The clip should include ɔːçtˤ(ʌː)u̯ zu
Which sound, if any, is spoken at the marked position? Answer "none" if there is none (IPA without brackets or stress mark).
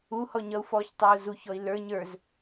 ʌː